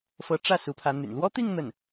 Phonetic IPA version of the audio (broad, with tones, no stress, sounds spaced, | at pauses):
f ɤ˧˥ ʈ͡ʂ ä˥˩ s u˧˥ pʰ ä˧˥ n̪ y̰˨˩ n l w ɔ˥ t̪ i˥˧ ŋ n̪ ə˥˩ n